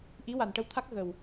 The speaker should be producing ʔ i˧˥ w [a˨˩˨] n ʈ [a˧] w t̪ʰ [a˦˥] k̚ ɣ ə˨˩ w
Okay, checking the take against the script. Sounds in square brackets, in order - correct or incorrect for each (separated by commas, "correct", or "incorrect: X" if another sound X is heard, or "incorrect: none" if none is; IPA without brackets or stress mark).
incorrect: a˨˩, incorrect: ə˧, correct